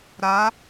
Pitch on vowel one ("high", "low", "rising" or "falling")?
rising